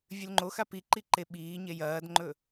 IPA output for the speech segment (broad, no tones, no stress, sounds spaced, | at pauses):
vʲ ʉ l ŋ͡ǃ o x a p i ǃ i ǃ e ɓ iː ɲ e j ɐː d ŋ͡ǃ ɵ